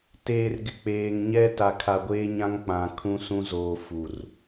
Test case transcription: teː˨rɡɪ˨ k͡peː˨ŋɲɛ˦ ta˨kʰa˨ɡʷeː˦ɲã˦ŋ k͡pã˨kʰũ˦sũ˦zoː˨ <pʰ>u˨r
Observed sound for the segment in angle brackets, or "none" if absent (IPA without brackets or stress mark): f